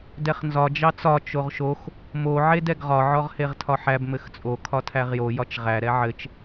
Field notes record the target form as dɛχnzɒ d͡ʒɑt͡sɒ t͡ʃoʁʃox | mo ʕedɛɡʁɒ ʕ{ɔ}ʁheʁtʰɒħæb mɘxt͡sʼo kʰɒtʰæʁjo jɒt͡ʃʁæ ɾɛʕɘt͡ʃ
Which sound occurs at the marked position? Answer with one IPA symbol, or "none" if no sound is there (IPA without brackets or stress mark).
ɔ